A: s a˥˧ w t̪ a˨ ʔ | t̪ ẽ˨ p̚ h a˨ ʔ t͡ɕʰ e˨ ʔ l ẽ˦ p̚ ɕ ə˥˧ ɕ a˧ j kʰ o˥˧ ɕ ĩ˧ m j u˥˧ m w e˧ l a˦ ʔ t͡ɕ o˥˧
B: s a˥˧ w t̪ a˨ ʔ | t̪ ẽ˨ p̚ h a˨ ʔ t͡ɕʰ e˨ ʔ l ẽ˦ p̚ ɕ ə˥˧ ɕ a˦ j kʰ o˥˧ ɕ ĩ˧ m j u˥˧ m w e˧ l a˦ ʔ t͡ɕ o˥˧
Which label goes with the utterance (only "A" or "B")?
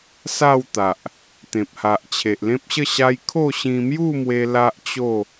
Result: B